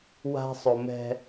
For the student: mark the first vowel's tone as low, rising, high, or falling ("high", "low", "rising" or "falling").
high